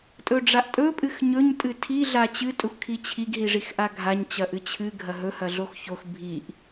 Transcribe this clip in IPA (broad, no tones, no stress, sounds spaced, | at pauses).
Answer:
tʼ ɵ ɖ͡ʐ a ʔ tʼ ɵ pʼ ɨ x ɲ ɵ ɲ tʼ ɨ tʰ i ɮ a t͡ɕ ɨ tʼ ɵ xʷ kʰ i t͡ɕʰ i ɡ ɦ i ʐ i x ʔ a ɡʱ a ɲ t͡ɕ ɐ ʔ ɨ t͡ɕʰ ɨ ɡʱ ɐ ɦ ɵ h ɐ ɮ o x ç o x bʱ i ʔ